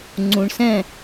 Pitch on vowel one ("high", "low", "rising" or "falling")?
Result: low